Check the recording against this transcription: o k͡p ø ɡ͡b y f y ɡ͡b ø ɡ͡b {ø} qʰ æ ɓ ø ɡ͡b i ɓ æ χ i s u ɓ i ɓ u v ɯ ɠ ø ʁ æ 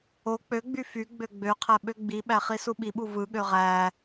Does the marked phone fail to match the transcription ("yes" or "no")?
no